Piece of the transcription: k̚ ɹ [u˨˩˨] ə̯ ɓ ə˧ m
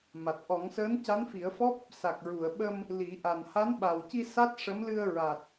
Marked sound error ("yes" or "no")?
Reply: no